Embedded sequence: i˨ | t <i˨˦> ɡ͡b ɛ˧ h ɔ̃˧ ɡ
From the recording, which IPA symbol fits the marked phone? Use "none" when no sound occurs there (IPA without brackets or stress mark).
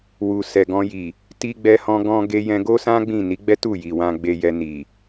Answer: i˧